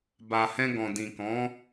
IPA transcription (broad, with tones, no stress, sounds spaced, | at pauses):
b a˨ h ɛ̃˧ ɡ ɔ̃˨ d ĩ˨ k ɔ̃˨˦